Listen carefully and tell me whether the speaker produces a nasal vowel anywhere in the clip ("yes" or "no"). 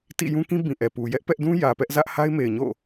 yes